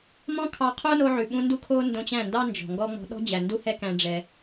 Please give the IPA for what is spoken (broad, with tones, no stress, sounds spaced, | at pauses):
m ɔ̃˦ kʰ ɑ˧ qʰ o˦ n o˧ ʕ ʉ˨ ɓ ũ˧ n d u˦ kʰ o˦ n d õ˧ t͡ɕ æ̃˦˨ n d ɑ˦ n d͡ʒ ɔ̤˨ ŋ ɡ ɔ˦ ŋ͡m ɔ̤˧ ɗ ɔ̤˦ d͡ʑ æ˨ n d u˦ h ɛ˦ k æ̃˦ ɖ͡ʐ ɛ˧